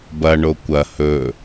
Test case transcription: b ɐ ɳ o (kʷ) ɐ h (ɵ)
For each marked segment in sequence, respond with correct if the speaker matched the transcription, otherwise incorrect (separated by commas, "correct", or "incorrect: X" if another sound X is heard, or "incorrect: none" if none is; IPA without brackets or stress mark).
correct, correct